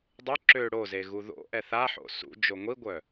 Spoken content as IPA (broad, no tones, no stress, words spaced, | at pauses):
dˤø ǁø ɽoze ɣuðo̰ʔɛ θa ħo̰sṵd͡ʒo ŋʷiɡʷœ